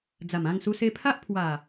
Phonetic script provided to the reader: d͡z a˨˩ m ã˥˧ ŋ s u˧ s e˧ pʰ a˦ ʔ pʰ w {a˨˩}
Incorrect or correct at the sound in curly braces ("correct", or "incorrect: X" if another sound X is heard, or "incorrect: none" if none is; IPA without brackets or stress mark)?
correct